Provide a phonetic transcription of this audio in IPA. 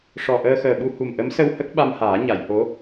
ʂɔ˨˩ʔəː˧xəː˨˩ɓu˧ hu˨˩mʔə˧˥msə˧w hə˦˥k̚ ɓa˧mhaː˨˩˦ɲa˨˩˨jho˧˥

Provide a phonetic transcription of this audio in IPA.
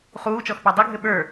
χuːt͡ʃɔxpæ dˤɘɡʱɘ ɓə˞

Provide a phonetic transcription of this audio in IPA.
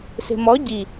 se̤mɔ ɟi

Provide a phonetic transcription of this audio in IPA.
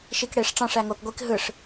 ʃikɽeʂ ʈ͡ʂɑ̃ʂ æŋok ɡʷik ɦɯʂ

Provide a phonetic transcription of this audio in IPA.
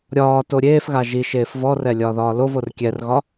ɾʲɒː toɾʲeːfɣa ʒi ʃeːfvɔrɛ lʲɒːðɒːlovor kʲɛrɣɒ

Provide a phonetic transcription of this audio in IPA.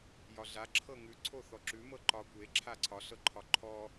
jɒɮa ǁʰɤŋʉ ǀʰoθɔǁʉ mɤǃɒ kʷe ǁʰaǀʰɒ ɬɤǃʰɒǃʰɔ

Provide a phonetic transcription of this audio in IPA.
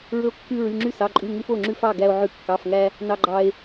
ɹɵ˥o̯kːʉ˥ ɹy˧˥˧ŋ͡ǁy˥sɑ˧˥˧ǃʼʉ˧˥˧ ŋʉ˥fo˧˥˧ ŋ͡ǁʉ˥fɑ˧˥˧ ɡæ˥o̯ʕʉ˥ kːɑ˧˥˧fŋæ˥ | nɑ˥ɡ͡ǃɑ˥e̯

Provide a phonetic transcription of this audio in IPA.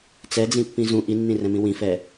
t͡sɛd͡zĩ pːĩzũ ʔinːĩrɛ̃mĩ wĩfɛ

